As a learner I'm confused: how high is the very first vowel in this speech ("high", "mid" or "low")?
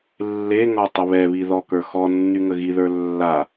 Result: mid